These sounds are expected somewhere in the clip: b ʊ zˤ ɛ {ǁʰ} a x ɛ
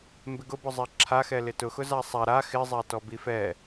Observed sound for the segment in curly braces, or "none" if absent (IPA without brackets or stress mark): ǁʰ